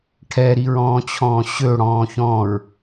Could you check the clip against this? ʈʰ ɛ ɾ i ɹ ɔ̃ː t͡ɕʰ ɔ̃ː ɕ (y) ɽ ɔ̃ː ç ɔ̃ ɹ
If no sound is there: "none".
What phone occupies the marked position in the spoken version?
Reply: ø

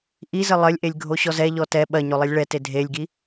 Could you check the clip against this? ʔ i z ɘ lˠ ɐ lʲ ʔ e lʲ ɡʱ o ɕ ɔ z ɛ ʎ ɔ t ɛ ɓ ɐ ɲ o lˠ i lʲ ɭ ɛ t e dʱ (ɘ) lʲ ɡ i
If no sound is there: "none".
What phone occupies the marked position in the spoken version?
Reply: e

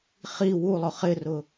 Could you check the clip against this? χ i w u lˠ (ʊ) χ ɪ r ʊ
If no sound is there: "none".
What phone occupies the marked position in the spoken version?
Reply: ʊ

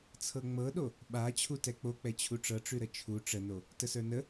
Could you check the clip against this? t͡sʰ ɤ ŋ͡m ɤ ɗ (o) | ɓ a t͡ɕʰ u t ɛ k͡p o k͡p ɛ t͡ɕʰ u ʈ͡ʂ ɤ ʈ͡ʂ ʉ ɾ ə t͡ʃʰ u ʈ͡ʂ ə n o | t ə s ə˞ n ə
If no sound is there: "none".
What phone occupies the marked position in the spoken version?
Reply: o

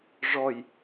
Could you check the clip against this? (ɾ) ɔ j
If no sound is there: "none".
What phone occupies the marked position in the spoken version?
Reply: ʐ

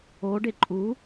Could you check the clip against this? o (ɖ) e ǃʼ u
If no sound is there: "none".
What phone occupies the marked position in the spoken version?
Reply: ɖ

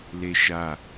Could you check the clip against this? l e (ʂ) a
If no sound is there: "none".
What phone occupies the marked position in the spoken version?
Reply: ʃ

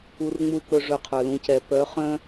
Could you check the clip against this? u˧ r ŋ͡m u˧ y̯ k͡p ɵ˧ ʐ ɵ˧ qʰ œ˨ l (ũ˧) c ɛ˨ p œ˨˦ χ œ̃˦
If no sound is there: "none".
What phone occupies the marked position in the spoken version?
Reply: ũ˧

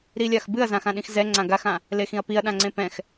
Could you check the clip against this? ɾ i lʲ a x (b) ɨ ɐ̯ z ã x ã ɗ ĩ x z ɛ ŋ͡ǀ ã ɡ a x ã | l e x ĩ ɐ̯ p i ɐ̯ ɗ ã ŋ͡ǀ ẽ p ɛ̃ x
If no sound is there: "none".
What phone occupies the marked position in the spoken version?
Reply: b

